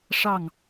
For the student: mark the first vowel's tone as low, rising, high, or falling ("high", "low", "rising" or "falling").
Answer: falling